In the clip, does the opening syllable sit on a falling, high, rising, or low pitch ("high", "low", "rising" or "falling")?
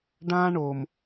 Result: high